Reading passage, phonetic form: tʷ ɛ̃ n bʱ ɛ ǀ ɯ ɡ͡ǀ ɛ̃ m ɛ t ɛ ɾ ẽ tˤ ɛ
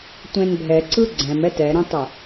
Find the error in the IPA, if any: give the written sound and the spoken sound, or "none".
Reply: none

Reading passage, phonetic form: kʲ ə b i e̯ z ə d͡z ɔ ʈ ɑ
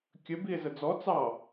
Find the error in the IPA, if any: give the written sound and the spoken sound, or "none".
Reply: ʈ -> t͡s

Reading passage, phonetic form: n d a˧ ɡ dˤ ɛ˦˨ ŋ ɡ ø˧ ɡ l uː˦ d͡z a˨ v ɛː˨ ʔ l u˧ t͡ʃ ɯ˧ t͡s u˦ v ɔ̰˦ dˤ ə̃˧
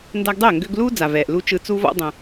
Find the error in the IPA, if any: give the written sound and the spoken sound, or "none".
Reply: none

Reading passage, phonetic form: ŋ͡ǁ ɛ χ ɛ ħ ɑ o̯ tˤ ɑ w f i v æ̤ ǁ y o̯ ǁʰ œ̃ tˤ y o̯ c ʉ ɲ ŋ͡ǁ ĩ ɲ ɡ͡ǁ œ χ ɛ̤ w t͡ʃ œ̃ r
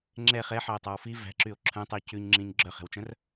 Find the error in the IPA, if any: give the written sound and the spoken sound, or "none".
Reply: none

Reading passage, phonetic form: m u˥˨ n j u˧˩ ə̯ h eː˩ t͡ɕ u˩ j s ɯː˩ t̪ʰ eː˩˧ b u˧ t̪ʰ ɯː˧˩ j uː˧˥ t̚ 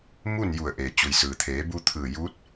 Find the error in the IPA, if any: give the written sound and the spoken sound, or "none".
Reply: h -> ʔ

